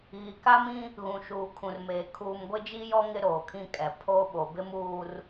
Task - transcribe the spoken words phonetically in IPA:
ɣi˨ka˦mĩ˦ | ɣũ˨ʃuː˨kʰũ˨rmeː˨ kʰuː˨mɡʷɪ˦d͡ʒi˦jɔ˦ ŋɪ˦ɾoː˨kʰĩ˦kʼɛ˨ pʰo˦ ɓo˨bɪ˦muː˦r

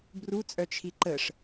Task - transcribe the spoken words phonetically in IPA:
brut͡sʼœ t͡ʃʰiǃəʂ

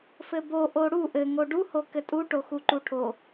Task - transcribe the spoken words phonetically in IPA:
fɘbo ʔoɽu ʔɘ ŋoɖu hokɘtʼu ʈoxuǃuʈʰo

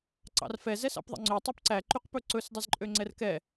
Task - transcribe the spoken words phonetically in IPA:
ǀɑ̰rfɛ zɛsɑ̰pðˤḛŋ͡ǀø tˤypǀæ ǃyqpɵǀɵs dˤizǃʼøŋ͡ǀɛrkɛ

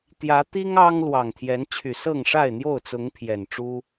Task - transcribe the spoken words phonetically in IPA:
t̪jä˨˦t̪i˦ŋ ɑ˦ŋ lwɑ˨˩ŋt̪ʰjɛ˨˦nt͡ɕʰy˨˩ sɤ˥˨ŋʂa˥˨ɪ̯n̪jo˥˨ʊ̯t͡sʊ˨˦ŋ pʰjɛ˨˩nʈ͡ʂu˦

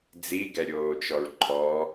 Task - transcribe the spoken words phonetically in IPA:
d͡ziɡɛɾʲoːt͡ʃɔɹ ǃʰɔ

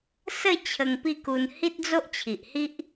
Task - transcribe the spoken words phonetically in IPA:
sə˥˧ t͡ɕʰə˧ŋpi˥˧ku˧n hi˦t̚d͡zo˦ʔt͡ɕʰi˨ʔhi˦ʔ

